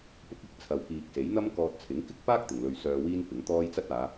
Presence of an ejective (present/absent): absent